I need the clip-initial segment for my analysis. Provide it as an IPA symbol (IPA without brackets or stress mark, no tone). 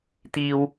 t̪